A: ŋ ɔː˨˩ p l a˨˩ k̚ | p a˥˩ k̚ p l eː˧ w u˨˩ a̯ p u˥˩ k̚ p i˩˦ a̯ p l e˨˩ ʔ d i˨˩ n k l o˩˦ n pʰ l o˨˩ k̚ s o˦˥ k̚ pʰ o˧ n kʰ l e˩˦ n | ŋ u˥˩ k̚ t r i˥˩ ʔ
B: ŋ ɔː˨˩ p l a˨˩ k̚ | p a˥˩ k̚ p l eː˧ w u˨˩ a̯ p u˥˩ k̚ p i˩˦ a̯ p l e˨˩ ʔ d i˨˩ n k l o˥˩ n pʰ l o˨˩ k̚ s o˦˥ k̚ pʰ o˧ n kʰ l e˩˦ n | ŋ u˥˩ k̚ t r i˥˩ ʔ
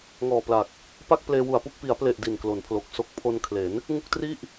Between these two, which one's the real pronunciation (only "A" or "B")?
A